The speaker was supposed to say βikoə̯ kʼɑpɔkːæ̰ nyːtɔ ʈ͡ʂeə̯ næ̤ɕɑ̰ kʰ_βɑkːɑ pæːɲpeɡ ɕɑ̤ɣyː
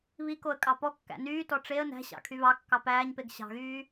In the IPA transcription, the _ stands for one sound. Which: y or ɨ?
y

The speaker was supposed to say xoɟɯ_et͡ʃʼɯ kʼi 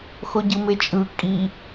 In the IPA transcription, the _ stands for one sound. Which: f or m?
m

